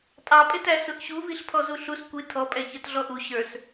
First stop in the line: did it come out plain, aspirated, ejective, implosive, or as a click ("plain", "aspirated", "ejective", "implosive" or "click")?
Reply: ejective